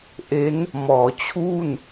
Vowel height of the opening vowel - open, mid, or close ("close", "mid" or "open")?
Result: mid